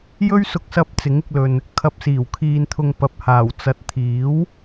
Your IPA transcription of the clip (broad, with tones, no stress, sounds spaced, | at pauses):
j ɵ˥ ɥ s ʊ˧ k̚ s ɐ˧ p̚ t͡s ɪ˨˥ ŋ ɪ˧ k̚ l ɵ˨ n | kʰ ɐ˨ p̚ s iː˨˩ w kʰ iː˨ n t̪ʰ ʊ˨ ŋ p ɐ˨ p̚ h aː˨˩ w t͡s ɐ˨ t̚ t̪ʰ iː˨˥ w